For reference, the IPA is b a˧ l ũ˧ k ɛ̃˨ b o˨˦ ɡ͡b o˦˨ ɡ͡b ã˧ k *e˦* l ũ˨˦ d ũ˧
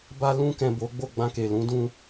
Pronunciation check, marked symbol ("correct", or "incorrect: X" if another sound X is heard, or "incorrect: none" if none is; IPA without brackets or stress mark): incorrect: e˨